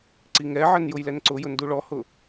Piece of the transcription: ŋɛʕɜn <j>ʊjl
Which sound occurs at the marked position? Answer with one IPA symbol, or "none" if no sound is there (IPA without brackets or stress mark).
j